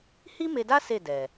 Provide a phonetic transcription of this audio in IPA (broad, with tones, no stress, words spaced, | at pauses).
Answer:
hi˦me˧da˦ se˦˨dɛ˨